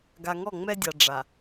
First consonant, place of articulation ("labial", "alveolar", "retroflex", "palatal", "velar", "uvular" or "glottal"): velar